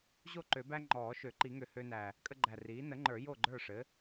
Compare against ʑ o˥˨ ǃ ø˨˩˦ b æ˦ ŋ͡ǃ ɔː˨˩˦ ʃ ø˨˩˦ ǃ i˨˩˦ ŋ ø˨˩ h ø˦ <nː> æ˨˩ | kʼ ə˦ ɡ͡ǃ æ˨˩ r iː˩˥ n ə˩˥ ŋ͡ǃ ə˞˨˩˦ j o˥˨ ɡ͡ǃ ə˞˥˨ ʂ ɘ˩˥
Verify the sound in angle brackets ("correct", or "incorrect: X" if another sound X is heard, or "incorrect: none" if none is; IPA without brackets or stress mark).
incorrect: n